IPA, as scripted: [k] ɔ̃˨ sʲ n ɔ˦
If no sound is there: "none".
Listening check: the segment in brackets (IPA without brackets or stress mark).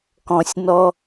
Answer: k